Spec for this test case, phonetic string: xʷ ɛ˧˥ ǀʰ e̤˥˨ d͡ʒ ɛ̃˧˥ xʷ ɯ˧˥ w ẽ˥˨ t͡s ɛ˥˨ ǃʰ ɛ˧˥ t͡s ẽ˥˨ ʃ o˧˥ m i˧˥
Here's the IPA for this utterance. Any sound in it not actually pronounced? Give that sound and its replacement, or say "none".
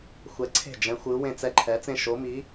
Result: none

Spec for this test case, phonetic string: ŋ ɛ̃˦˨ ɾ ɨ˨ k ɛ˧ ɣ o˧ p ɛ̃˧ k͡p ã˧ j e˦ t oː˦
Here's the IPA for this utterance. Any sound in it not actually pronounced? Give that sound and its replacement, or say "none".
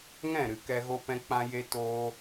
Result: none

